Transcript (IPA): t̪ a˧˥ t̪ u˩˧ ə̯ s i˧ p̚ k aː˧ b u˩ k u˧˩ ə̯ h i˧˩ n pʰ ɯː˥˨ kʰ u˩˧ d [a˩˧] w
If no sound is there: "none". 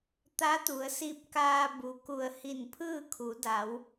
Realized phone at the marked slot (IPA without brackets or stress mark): a˩˧